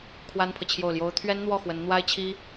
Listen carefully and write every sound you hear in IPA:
kʰ w a˥ n pʰ ɤ˨ t͡ɕʰ j o˥˩ ʊ̯ l j o˥ ʊ̯ t̪ʰ ɥ ɛ˥ n n̪ w ɔ˥˩ x w ə˧˥ n n̪ w a˥ ɪ̯ t͡ɕʰ i˥

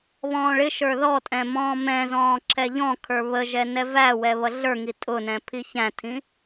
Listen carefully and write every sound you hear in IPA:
β ɔ̃ː ɭ ɪ ʃ ə˞ ð ɔ tʼ ɛ̃ m ɔ̃ː m ɛ̃ z ɔ̃ː ǁʰ ɛ ʎ ɔ̃ kʰ ə˞ β ə ʒ ɛ n ɛ v æ w ɛ β ʌ ɮ ə˞ ŋ i tʼ ʊ n ɛ̃ pʰ i ç æ̃ tʰ ĩ

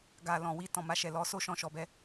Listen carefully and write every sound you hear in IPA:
ɡ a˨ l ɔ̃˨ w i˧ t ɔ̃˨ m a˧ ʃ ɛ˨ l ɔ˧ s o˧ ʃ ɔ̃˨ ʃ ɔ˨ b ɛ˧

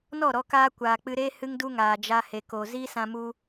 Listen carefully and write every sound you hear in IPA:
n ɔ˦˨ ɾ ɔ˦ k aː˦ kʷ aː˨ k͡p ɨ˧ ɾ eː˦ h ɨ˦ ŋ d u˦ ŋ aː˨ d͡ʒ a˧ h e˨ k o˨ z i˦ s ã˧ m u˧

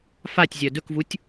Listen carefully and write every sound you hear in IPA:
f a tʲ zʲ œ d ɵ k v u tʲ

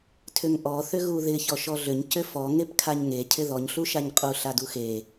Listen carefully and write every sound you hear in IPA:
tʰ ʏ ŋ ʔ ɔ θ ʏ ɣ u ð ɪ ç ɔ ʃ ɔ ɮ ʏ ɲ c ʏ f ɔ ŋ e p kʰ a ɲ ŋ e cʰ ɪ ð ɔ ɲ ɬ u ʃ a ɲ qʼ u ɬ a d u x e

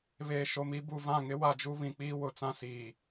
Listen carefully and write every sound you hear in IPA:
β eː˨ ʃ o˨ m i˦ b u˨ v ã˦˨ ŋ ɪ˦ w a˦˨ d͡ʒ u˦ β ĩ˨ k͡p iː˦ w ʊ˨ t͡s ã˦ s iː˨

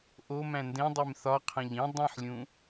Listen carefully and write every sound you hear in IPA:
ʔ o m æ̃ n d ẽ dˤ e m θ ɒ qʰ æ̃ ʎ ĩ dˤ ĩ ħ lʲ ũ

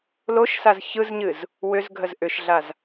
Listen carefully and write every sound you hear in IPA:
l o ʃ s a z ç ɯ z ɲ ɨ z | w ʏ z ɡʱ ə z ʔ ʏ ʃ ɮ a z

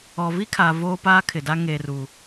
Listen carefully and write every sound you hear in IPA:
ɔ˨ v i˦ kʰ aː˨ v oː˦ p aː˦ kʰ ɪ˨ d a˦ ŋ e˨ r u˨

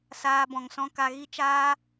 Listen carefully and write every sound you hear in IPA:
s aː˧ b ɔ̃˨ ŋ s ɔ̃˧ k a˧ ɣ i˦ t͡ʃ aː˦

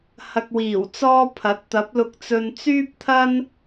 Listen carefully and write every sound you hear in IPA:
h ɐ˨ k̚ w iː˨˩ w t͡s ɔː˧ pʰ ɐ˨˥ t̚ t̪ ɐ˨˥ p̚ l ʊ˧ k̚ t͡s ɵ˧ n t͡s yː˥ p̚ t̪ʰ ɐ˥ n

